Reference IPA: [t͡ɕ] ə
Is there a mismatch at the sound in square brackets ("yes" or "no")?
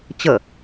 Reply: no